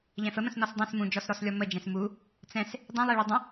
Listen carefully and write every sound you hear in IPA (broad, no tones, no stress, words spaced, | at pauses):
ʎɛ̃fəmə̃s nɔsdˤĩs mũd͡ʒɔsɾɔslʲɔ mə d͡ʒɛ̃smu | t͡sɛ̃s | dˤĩlˠiɭu dˤə̃